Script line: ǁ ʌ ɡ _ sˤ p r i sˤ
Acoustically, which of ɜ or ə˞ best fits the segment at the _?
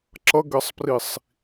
ɜ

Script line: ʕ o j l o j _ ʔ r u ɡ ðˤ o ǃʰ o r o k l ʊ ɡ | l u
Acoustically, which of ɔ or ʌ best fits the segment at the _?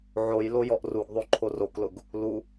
ɔ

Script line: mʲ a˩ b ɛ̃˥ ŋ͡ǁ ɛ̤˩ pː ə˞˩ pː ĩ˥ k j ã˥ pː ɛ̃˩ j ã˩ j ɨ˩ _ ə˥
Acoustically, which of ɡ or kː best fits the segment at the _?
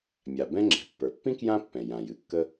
kː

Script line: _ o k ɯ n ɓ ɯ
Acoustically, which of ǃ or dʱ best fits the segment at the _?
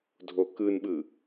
dʱ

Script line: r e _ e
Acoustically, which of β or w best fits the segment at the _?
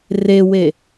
w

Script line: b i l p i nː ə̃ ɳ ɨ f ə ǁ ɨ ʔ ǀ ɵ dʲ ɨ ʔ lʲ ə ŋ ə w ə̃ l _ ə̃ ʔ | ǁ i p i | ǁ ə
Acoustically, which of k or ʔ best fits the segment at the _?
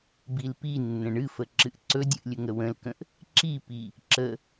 k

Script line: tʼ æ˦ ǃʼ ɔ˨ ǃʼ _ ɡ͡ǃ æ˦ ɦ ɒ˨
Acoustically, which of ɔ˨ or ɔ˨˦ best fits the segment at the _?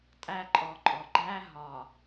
ɔ˨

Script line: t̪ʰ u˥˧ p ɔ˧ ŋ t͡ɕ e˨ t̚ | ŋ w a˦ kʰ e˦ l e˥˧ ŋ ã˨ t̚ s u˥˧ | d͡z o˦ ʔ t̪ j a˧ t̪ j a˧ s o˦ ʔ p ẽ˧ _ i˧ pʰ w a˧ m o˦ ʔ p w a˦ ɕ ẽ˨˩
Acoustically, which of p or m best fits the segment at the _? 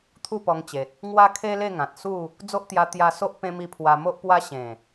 m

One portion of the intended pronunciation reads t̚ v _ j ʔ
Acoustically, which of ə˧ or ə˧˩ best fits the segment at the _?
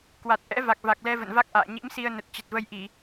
ə˧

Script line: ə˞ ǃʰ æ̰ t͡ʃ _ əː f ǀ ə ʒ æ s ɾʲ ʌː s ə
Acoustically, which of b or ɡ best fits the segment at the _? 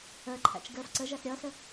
ɡ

